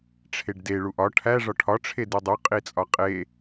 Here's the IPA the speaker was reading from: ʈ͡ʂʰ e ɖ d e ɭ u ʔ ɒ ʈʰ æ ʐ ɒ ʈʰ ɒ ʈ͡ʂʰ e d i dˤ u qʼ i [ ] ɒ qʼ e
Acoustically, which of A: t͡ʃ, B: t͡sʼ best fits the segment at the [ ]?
B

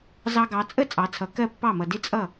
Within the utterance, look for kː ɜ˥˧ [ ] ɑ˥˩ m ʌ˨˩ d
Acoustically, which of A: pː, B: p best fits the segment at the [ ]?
A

